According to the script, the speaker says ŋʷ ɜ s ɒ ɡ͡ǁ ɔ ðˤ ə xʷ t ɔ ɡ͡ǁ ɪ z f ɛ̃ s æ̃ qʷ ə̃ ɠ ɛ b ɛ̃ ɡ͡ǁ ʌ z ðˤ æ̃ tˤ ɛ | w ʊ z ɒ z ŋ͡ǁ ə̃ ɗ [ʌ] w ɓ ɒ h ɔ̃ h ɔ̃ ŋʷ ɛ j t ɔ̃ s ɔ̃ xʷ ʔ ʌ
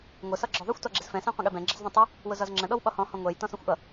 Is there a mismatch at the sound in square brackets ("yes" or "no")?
yes